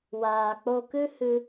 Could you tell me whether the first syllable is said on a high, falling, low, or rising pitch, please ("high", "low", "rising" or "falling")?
low